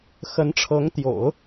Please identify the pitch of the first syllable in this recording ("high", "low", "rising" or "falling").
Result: rising